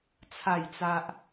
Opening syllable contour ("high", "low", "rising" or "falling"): falling